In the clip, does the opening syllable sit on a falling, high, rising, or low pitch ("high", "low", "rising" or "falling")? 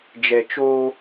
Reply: low